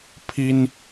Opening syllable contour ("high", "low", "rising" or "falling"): high